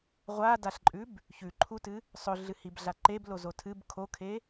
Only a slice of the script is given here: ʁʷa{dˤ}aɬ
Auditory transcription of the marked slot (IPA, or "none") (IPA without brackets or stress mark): d